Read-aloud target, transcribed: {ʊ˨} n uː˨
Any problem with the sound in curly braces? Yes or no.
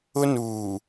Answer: yes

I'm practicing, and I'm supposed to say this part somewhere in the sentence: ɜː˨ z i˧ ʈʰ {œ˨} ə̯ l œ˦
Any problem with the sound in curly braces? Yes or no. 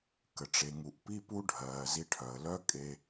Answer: no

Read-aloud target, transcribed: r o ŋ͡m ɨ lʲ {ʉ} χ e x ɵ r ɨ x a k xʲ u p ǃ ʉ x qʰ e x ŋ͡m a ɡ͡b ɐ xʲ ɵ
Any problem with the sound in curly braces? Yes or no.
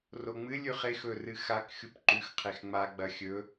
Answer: no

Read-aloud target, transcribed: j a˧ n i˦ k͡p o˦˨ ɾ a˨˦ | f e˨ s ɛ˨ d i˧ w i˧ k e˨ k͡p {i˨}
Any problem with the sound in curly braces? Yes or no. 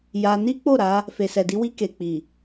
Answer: no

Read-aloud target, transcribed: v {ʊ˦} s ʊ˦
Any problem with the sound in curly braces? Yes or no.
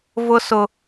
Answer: no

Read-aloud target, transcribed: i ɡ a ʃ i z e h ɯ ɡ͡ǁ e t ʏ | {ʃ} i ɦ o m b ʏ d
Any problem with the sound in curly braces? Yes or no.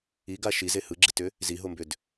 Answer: yes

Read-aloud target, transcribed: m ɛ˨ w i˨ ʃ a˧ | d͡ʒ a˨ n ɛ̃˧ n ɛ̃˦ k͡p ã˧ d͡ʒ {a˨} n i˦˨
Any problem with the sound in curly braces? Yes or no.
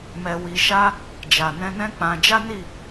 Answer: yes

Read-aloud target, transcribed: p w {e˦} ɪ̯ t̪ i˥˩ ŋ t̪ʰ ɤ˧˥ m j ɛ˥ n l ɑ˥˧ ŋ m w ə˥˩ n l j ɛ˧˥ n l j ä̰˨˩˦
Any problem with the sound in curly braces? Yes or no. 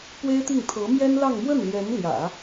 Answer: yes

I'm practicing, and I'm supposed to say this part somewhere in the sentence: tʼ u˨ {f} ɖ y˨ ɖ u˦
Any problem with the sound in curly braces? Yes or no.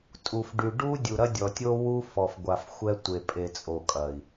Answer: no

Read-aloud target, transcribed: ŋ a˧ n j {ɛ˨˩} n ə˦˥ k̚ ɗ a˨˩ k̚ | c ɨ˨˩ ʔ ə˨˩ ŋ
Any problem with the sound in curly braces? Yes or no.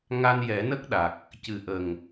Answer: yes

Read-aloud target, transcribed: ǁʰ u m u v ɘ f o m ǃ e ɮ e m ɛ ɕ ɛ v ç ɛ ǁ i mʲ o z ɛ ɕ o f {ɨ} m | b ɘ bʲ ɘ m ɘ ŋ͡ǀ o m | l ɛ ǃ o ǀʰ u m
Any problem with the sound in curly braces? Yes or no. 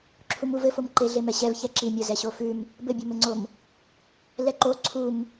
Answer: yes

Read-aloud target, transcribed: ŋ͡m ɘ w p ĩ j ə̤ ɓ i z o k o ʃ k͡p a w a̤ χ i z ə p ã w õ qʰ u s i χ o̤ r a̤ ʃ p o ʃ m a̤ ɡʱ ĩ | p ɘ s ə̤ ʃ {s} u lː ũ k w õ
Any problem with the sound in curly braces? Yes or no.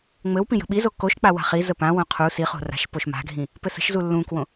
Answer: yes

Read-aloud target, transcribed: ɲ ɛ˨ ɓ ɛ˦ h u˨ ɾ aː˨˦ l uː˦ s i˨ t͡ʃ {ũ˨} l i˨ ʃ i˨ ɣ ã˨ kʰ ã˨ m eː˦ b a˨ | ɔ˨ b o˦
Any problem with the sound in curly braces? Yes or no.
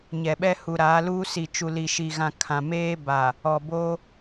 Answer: yes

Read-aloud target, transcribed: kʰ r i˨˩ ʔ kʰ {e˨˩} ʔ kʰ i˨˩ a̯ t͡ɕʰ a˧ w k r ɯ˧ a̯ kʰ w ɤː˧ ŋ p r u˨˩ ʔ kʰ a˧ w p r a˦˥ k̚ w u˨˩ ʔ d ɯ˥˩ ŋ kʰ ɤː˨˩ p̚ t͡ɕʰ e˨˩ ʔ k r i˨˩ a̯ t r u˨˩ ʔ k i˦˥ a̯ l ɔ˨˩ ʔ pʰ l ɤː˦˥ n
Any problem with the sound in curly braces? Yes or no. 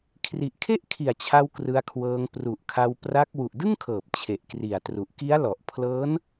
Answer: yes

